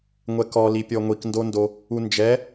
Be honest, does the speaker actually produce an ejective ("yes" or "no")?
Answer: no